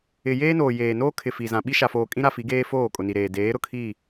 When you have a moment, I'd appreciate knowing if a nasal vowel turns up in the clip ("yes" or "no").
yes